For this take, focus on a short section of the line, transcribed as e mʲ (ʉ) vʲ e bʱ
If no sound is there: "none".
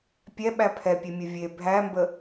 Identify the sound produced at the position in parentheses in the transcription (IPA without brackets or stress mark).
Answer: ə